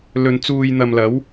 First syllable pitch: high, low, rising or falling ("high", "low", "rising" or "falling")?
low